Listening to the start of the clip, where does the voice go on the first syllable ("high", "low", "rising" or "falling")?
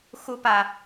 high